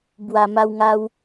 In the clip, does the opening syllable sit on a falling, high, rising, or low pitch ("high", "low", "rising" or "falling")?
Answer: low